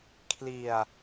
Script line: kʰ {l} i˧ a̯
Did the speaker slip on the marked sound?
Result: no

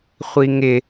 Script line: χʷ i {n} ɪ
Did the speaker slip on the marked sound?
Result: yes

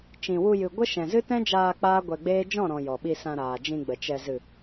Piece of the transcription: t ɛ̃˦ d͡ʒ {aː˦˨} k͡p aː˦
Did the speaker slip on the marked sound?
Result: yes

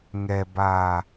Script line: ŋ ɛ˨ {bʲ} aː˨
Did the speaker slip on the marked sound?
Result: yes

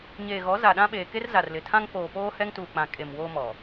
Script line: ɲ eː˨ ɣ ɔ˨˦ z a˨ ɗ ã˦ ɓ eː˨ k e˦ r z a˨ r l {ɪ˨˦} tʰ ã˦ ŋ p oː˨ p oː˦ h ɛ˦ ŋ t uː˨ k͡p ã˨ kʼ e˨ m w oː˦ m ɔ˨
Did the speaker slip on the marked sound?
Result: yes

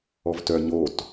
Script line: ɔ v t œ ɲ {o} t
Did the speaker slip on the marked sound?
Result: no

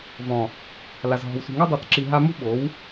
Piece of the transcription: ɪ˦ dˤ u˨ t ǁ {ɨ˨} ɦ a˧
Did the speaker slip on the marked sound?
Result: yes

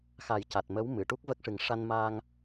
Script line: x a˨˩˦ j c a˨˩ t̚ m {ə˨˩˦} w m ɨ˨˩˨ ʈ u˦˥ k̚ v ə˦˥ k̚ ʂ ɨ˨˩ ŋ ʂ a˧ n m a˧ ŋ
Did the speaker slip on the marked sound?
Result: yes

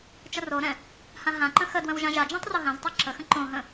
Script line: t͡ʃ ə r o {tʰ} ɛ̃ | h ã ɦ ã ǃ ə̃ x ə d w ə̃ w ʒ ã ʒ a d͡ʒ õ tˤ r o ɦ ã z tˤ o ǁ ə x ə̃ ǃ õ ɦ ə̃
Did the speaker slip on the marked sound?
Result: yes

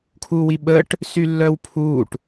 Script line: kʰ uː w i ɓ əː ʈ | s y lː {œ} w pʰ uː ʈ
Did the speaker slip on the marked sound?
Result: no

